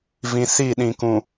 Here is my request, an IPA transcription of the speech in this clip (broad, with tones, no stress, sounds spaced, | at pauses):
v ĩ˨ s i˦˨ ɗ ĩ˨ k ũ˨